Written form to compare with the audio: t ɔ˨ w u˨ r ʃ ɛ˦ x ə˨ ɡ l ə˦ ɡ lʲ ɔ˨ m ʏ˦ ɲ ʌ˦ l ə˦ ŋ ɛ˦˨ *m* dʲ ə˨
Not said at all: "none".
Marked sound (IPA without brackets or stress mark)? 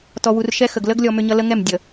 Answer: m